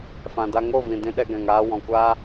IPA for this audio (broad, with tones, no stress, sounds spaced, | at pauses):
f ã˨ d a˧ ŋ o˦˨ v ĩ˨ d ĩ˧ ɗ ɛ˧ ɡ ɛ̃˨ ŋ aː˧ w ɔ̃˨ kʷ aː˦